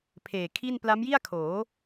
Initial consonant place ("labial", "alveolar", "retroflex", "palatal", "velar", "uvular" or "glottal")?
labial